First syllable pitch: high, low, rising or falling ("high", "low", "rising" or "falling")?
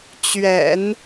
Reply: low